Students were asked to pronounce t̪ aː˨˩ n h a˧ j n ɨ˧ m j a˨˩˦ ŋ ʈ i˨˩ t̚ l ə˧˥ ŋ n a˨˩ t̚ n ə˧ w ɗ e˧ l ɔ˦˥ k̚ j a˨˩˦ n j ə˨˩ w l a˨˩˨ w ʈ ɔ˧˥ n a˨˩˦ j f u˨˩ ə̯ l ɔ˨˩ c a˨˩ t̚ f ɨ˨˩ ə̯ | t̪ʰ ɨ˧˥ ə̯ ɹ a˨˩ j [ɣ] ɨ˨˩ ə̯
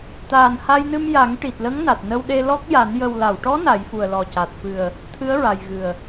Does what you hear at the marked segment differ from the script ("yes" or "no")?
no